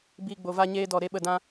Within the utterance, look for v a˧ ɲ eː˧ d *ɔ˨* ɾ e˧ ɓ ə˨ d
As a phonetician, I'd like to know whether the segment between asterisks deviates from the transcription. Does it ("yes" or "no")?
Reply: no